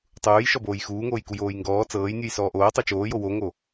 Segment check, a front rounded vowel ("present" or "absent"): absent